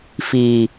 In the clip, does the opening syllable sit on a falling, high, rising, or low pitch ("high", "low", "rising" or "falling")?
low